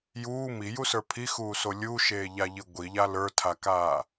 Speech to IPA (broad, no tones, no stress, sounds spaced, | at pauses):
j uː m i j u s ə˞ pʰ i x uː s o lʲ u ʃ eː ʎ a ʎ i ɡʷ i ʎ a l ə˞ tʰ a k aː